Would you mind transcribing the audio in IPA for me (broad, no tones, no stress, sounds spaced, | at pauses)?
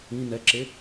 ĩ n ɛ ǁ e